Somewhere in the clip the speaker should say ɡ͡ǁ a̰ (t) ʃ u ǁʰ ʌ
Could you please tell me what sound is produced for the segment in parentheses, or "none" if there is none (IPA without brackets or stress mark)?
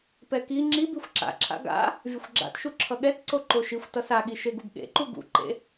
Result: t